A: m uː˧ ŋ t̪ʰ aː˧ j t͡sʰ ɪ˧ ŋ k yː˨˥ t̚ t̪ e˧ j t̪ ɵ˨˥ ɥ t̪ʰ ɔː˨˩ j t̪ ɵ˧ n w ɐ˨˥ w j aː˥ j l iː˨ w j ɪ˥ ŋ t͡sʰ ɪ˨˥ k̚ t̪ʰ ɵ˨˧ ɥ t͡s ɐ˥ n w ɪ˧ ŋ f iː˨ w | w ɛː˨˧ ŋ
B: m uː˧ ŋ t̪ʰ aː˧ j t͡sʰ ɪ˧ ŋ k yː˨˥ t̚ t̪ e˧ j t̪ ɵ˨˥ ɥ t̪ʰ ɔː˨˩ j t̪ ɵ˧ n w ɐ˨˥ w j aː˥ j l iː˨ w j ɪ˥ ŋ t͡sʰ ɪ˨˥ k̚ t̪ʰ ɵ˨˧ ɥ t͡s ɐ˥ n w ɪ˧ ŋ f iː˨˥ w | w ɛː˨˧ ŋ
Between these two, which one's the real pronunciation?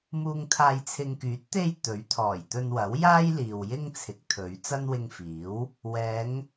B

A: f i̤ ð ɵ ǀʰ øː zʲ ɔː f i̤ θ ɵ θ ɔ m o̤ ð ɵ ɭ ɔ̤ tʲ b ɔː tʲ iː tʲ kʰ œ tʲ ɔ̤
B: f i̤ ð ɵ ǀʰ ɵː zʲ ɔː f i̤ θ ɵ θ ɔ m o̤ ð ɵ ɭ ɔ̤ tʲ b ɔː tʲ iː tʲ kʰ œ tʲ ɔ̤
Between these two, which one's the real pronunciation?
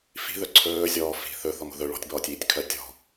B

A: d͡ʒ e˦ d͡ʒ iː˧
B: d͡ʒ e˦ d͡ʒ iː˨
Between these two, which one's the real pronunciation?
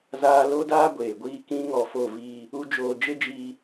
A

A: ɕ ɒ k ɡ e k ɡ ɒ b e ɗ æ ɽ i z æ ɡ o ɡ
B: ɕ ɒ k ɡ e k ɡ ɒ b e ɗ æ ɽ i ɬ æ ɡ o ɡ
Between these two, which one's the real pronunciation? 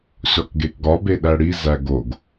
A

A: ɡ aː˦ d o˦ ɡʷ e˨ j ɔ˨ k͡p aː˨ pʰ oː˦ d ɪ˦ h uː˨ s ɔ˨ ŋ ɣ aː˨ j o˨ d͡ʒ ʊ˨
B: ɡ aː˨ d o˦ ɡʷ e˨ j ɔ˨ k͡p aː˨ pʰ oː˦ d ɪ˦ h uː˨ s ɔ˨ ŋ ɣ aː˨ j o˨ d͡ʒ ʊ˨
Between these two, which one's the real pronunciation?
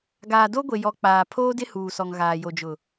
B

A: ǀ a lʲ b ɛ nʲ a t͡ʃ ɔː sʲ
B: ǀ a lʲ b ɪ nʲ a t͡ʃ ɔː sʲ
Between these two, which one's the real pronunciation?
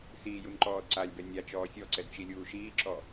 A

